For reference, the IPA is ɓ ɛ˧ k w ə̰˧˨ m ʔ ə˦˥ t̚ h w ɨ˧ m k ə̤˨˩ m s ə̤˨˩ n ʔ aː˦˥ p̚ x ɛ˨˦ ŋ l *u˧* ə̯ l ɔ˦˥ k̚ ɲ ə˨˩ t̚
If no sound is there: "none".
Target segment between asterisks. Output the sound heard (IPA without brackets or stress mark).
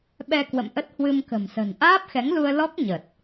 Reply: u˧